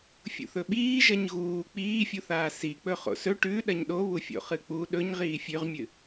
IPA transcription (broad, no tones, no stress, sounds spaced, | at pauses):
fʲ ṵ θ ɵ ɓ iː ʒ ɐ ɲ ɣ uː k͡p iː fʲ u θ aː s i k͡p ɵ χ o̰ s ɵ ʈ ʉ ɗ ɐ ɲ ɗ o β u fʲ o̰ χ ɨ k͡p u ɗ ɵ ɲ ʁ iː fʲ ʉ ʁ mʲ ɨ